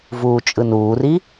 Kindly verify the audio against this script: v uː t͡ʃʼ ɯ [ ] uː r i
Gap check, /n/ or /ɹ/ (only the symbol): n